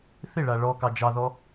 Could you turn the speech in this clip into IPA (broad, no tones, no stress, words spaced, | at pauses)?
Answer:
θɪɭa ɭɔkɑ d͡ʒɑðɔ